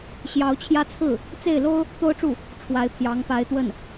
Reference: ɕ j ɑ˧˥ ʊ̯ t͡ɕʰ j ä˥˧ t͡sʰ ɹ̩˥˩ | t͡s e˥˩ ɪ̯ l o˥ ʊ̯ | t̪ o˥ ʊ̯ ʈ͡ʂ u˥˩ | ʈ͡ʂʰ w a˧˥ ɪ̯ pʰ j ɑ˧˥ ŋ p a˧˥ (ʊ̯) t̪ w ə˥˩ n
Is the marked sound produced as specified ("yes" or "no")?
no